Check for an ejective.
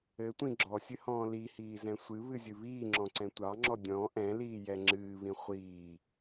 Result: absent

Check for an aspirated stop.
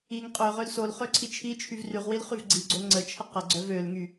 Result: present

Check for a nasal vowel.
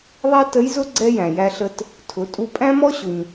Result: present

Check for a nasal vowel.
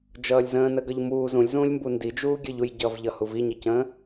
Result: present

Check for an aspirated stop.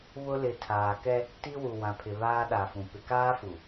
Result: present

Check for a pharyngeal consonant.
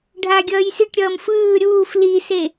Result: absent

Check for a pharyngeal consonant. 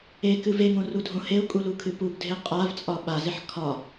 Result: present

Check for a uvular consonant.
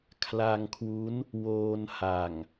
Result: absent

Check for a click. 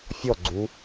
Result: present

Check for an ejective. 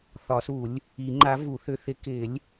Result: absent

